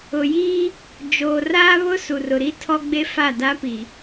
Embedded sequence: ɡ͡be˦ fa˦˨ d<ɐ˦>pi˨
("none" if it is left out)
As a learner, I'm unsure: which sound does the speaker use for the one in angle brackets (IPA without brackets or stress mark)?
a˦